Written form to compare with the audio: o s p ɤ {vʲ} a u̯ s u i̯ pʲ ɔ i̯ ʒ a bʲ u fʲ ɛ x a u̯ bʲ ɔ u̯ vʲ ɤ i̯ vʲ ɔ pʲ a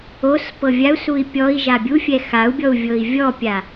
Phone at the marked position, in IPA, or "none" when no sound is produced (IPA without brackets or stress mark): vʲ